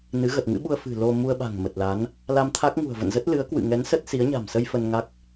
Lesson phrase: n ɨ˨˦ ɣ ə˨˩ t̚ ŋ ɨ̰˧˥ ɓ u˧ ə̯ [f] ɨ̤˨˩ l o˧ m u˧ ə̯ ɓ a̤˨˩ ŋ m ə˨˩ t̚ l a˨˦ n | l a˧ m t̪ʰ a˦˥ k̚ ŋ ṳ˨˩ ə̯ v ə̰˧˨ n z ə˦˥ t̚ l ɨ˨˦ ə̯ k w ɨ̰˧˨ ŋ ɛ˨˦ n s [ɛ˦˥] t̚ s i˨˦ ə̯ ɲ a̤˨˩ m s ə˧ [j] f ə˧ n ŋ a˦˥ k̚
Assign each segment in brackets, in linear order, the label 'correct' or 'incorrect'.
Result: correct, incorrect, correct

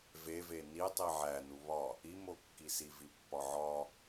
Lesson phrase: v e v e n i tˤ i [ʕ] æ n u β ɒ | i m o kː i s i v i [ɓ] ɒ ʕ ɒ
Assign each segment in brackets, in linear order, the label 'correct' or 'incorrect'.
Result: correct, incorrect

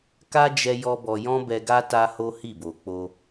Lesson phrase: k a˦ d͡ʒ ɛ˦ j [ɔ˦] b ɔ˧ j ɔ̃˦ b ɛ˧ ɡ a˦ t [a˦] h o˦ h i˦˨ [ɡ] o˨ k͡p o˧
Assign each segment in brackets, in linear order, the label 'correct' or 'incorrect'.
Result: correct, correct, incorrect

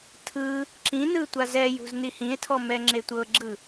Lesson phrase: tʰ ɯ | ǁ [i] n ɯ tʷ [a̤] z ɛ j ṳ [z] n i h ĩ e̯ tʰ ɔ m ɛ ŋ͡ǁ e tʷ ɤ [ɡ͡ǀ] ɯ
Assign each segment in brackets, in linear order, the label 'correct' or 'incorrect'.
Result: incorrect, incorrect, correct, incorrect

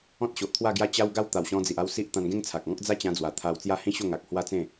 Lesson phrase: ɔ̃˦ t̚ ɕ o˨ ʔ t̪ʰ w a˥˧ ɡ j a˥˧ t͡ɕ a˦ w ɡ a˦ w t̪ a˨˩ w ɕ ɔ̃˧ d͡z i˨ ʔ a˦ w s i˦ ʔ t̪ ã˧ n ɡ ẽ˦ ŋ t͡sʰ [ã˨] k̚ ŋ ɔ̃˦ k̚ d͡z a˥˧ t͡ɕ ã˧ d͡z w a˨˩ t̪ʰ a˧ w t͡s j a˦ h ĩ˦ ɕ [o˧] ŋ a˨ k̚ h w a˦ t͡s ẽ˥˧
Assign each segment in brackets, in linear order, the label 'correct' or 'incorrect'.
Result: incorrect, incorrect

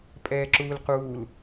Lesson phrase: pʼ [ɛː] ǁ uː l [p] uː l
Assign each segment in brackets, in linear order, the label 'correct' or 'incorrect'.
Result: correct, incorrect

